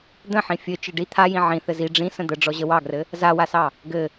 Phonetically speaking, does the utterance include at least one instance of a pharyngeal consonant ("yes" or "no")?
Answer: yes